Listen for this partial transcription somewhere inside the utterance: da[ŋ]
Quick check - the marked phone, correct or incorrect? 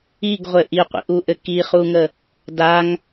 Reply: correct